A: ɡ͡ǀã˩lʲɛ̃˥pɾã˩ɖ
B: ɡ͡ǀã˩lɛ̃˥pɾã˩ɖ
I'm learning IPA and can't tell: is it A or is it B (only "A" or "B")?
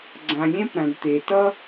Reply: A